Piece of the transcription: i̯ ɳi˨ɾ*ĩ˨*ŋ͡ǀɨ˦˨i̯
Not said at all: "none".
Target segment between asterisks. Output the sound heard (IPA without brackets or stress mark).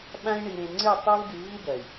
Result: ẽ˨